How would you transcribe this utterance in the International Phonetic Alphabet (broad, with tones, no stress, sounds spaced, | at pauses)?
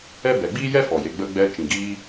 ɛ˦ b ɛ˨ ɡ͡b iː˦ j ɛ˦ f ɔ˨ j e˨ ɡ͡b ə˧ ɡ͡b ɛ˧ t͡ʃ ĩ˨ ɡ iː˧